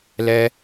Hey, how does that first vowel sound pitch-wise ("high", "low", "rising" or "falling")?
high